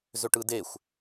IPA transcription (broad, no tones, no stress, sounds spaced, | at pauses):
z ø ʈ ɯ d e xʷ